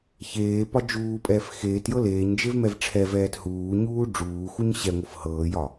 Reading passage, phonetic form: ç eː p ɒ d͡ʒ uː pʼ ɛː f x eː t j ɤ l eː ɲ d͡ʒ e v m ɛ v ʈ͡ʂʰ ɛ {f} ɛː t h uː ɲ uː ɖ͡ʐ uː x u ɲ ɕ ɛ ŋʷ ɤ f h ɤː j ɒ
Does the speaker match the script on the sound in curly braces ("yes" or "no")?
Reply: no